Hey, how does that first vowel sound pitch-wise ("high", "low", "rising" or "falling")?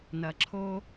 low